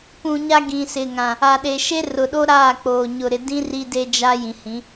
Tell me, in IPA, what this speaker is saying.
p ũ˨ ɲ a˦ ɡ ĩ˨ s ɪ˨ ŋ ã˨ | a˨ ɗ e˨ ʃ e˦ r ʊ˨ ɗ o˦ ɾ aː˦˨ k͡p oː˨ ɲ ʊ˨ ɾ ɪ˨ d ĩ˦ r i˦ d e˦ d͡ʒ a˦ j ĩ˨ h ĩ˨˦

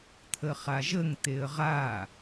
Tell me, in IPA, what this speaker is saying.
t̪ʰ ə χ a ʒ ə ŋ t̪ e ə̯ ʁ a

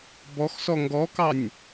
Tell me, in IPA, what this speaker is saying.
b ɔ x s ɔ ŋ ɡ ɔ k ɑ nʲ

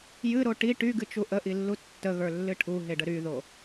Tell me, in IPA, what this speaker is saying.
j ɨ ɾ o ʈ i ʈ y ɡ ɨ t͡ʃ u ʔ ə ʔ i lː u tː ə ɣ ə˞ lː ɨ ʈʰ u ɦ e ɖ ə ɾ y ð o

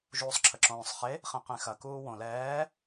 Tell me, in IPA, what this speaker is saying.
ʒ uː sˤ ǁʰ ə ǁ õː sˤ χ e | χ ẽ q ẽ x ɐ k uː w õ l ɛː

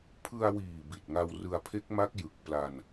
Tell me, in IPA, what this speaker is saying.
pʰ ɯ˧ a̯ w iː˨˩ b i˨˩ t̚ ŋ a˧ w r ɯ˧ a̯ pʰ e˦˥ k̚ m a˦˥ k̚ j ɯ˨˩ k̚ p l a˧ n

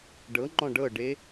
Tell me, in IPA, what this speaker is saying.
ɖ ɤ ŋ͡ǃ ɔ̃ ɖ ɤ ɖ e

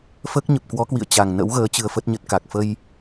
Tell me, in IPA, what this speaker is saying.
f əː˦˥ k̚ ɲ ə˨˩ p̚ k w ɔ˨˦ k w ḭ˧˨ ə̯ t͡ɕ a˨˩ ŋ n ə̰˧˥ w ɣ əː˨˦ t͡ɕ ɨ˧ ə̯ f ə˦˥ t̚ ɲ ə˦˥ t̚ k a˨˩ k̚ f ə˧ j

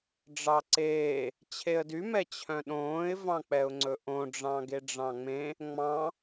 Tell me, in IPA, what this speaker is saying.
ɖ͡ʐ ɑ ǀ eː | t͡ɕʰ e ə̯ d y m ɛ t͡ɕʰ œ̃ ɗ õː ɪ̯ v ɑ̃ k͡p ɛ ʊ̯ ŋ͡ǀ ɵ ʔ õ ɖ͡ʐ ɑ̃ ɡ e ɖ͡ʐ ɑ̃ ŋ͡m ẽ | ŋ͡m ɑ̃

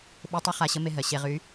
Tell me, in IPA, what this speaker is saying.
ɓ e˧ tˤ ɘ˧ χ a˧ ɕ ə˧˥ m e˧ ɦ ɜ˩ ɕ e˧ ʁ y˧˥

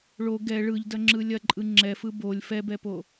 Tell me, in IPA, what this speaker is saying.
ɭ o ɡ ɛ ɭ ɯ ʎ d ɐ ŋ͡ǁ ɯ lʲ ɐ ǃʼ ɯ ŋ͡ǁ ɛ f ɯ b o lʲ f ɛ b ɛ p o

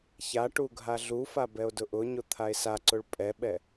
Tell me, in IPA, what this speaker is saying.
ç a ʈ u ɡʱ a ɮ u f a b ɛ o̯ d ʊ ʔ ʊ ɲ ʊ t̪ʰ a e̯ s a ǀ ʊ ɭ pʼ ɛ ɓ ɛ

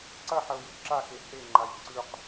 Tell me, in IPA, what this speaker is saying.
ǀ ɐ ħ ɐ ʊ̯ j u ǁ a x e h e ŋ͡ǃ a j ǀ ʉ q

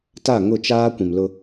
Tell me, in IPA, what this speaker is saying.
t a˦˨ ŋ ʊ˦˨ t͡ʃ aː˦ kʷ ĩ˨ m l ʊ˦

